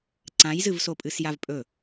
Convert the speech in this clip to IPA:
ǀãjzɨvsopʼɨs javpʼɵ

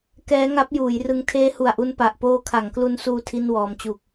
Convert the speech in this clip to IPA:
kɛː˦˥ŋa˦˥p̚juː˩˦jrɯ˧ŋ tʰeː˦˥hu˨˩a̯ʔu˧n pa˨˩ʔpoː˦˥kʰa˩˦ŋklu˦˥n suː˥˩tʰi˥˩nwɔː˧m t͡ɕu˨˩k̚

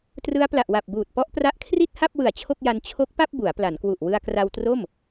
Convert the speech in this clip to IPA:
trɯ˦˥a̯pla˨˩ʔwa˨˩p̚buː˨˩t̚ pɔ˦˥ʔpra˦˥ʔkʰri˥˩t̚ha˥˩p̚ wɯ˨˩a̯t͡ɕʰo˥˩k̚ja˧n t͡ɕʰo˦˥k̚pa˥˩p̚ bu˩˦a̯pla˩˦nkwu˨˩ʔ wɯ˧a̯kra˧wtro˥˩m

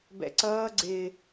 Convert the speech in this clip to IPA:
bɛ̰ǀʌː ɡ͡ǀɪː

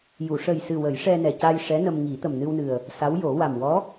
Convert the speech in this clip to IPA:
ju˨˩˨ʂə˨˩jsɨ˨˩ wə˨˩˦jʂɛ˧nɛ˨˩ca˧j ʂɛ˧˥nə˧m ŋi˨˩˦t̪ə˨˩mnɨ˧wnɨ˨˩ə̯ | sa˧˥wjo˨˩˦ wa˨˩mwɔ˧˥

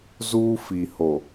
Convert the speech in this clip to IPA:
zuː˦fi˨ho˨

